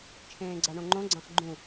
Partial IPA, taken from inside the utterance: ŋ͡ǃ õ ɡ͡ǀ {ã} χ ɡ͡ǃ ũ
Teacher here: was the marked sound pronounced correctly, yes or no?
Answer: yes